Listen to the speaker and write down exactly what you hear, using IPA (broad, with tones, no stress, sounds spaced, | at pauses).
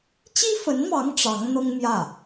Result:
t͡ɕ i˥ f ə˧˥ n m ɑ˧˥ ŋ ʈ͡ʂ ɑ˧˥ ŋ n̪ ɤ˥ ŋ m j ä˥˩